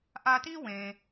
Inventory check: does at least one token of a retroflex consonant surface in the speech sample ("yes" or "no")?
no